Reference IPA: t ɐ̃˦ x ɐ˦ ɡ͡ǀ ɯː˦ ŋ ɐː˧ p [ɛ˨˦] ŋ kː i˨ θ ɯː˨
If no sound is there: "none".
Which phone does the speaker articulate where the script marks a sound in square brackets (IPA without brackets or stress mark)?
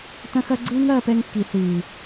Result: ɛ˧